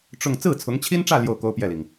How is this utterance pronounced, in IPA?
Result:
ʈ͡ʂ ʊ˥˧ ŋ t͡s ɹ̩˥˩ t͡sʰ ʊ˧˥ ŋ t͡ɕʰ i˥ n ʈ͡ʂ ä˥˧ l j o˥˩ ʊ̯ k o˥ ʊ̯ p j ɛ˥˩ l i˩ ŋ

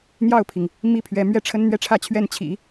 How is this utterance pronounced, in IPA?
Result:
n̪ j ɑ˥˩ ʊ̯ pʰ i˩ ŋ | m i˥ pʰ ɥ ɛ˧˥ m ɥ ɛ˥˩ ʈ͡ʂʰ ə˥ n n̪ ɥ ɛ˥ ʈ͡ʂʰ ä˥˧ t͡ɕʰ ɥ ɛ˥˩ n t͡ɕʰ ḭ˨˩˦

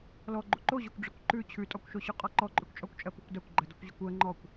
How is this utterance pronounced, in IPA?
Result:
l ɔ ɡ͡ǃ u ǃ o ʑ o kʷ ɖ͡ʐ ə kʷ ǃ ʉ t͡ɕʰ ʉ tʼ ɔ kʷ ʃ o ɕ ʉ qʼ ɔ ǃ ɔ ǃʼ ʉ kʷ t͡ʃʼ ɔ kʷ t͡ʃʼ ɜ p u kʷ d a kʷ ɡ͡ǃ ə d ɔ kʷ ʑ ə kʷ ɜ ŋ͡ǃ ɔ kʷ

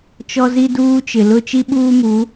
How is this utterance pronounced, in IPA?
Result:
t͡ʃ ɔ˦ z i˦ d uː˦ t͡ʃ ɪ˨ l ʊ˦ t͡ʃ i˦ ɓ uː˦ m u˨˦

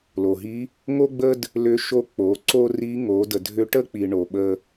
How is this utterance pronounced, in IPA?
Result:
l o˩ ɦ i˧˥ | ŋ o˥ ɡ͡b ə˥ d | l ʏ˧˥ ʃ o˧˥ k͡p o˩˧ ǀ o˥ r i˧˥ ŋ o˩˧ d ə˩ dʱ ʏ˧˥ ʈ ə˥ k͡p i˩ ɳ o˩ ɓ ə˧

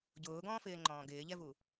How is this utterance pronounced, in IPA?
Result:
ɟ ʊː ɡ ɔ̃ː f ɪː ŋ͡ǃ ɔ̃ː ɡ ɪː ʎ ɛ v u

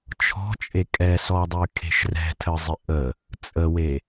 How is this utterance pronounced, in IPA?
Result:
t͡ʃʰ ɔ̤ t͡ʃʼ e kʼ ɛ s ɔ dˤ y kʰ e̤ ʃ r ɛ̤ tʰ ə zˤ ɪ ʔ ə | t͡sʼ ə w e

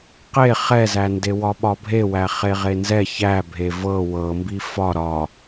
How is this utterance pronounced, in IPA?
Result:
q e χ ɛ z æ n d e w ɒ ɓ ɒ bʱ e w æ χ e ʁ e n z ɛ ç æ bʱ e v ɤ w ɤ m b i f ɒ ɾ ɒ

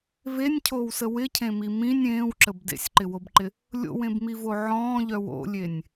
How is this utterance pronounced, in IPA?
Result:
v e nʲ cʰ oː w s ə w ɪ cʰ ẽ m i m ĩ nʲ ẽː w ǁ ə b d ḛ sʲ ǃ ɪ w o b ǃ ɪ | lʲ o̰ w ẽ b m i v o ʕ ɔ̃ː ʎ œ w o̰ lʲ e nʲ

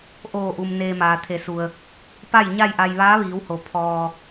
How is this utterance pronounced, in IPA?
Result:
ʔ oː˧˩ ʔ u˩ m n eː˧ m aː˩ t̪ʰ e˩˧ s u˩ ə̯ | p a˥˨ j ɲ a˥˨ j ʔ a˧ j ʋ aː˧˥ ʋ iː˩˧ w h o˩ pʰ ɔː˧

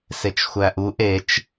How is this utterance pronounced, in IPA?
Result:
s e t͡ʃ xʷ æ ʔ u ʔ e t͡ʃ

